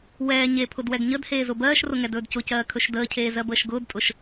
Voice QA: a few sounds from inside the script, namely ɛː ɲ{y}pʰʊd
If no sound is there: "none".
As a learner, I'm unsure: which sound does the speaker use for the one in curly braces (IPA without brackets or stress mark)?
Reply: e